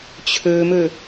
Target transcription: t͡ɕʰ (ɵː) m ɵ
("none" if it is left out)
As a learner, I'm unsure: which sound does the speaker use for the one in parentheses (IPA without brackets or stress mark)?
ɵː